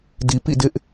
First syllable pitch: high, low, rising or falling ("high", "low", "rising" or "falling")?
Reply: low